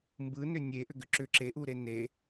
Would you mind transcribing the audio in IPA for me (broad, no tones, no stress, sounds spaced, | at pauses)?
m b ɯ n ʏ nʲ e ʔ ʏ ɡ ʏ ǁ ʏ ǁ e ʔ u ɾ e n e